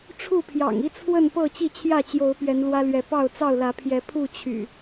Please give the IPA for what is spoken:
ʈ͡ʂʰ u˥˨ pʰ j ɑ̰˨˩ ŋ i˦ t͡sʰ w ə˥˨ n p ɤ˥˨ t͡ɕ i˥˨ t͡ɕʰ j ä˥˨ t͡ɕ j o˨˦ ʊ̯ p ɥ ɛ˨˦ n l w ä˦ l ɥ ɛ˨˦ p ɑ˥˨ ʊ̯ t͡s ɑ˥˨ ʊ̯ l ä˨˦ pʰ j ɛ˨˦ pʰ u˥˨ t͡ɕʰ y̰˨˩

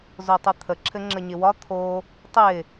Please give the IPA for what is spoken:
z o tˤ ɘ t̪ʰ ə ǁʰ ɘ ŋ͡ǁ ə ɲ ɪ w ɒ t̪ʰ o | tˤ ɪ

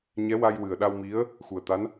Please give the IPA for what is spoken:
ɲ ɛ˧˥ w a˧ j w ɨ˨˩ ə̯ ɗ a˧ w m i˧˥ ə̯ | x u˨˩ ə̯ t̪ a˧˥ n

